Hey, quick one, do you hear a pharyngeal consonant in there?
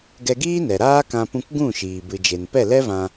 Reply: no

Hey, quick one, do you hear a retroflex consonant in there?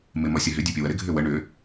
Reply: yes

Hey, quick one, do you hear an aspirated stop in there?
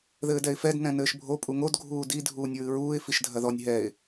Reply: no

